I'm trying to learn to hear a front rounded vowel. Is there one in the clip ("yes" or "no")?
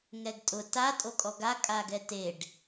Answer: no